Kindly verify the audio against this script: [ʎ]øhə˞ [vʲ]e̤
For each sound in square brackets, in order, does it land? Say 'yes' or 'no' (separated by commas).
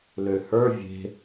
no, yes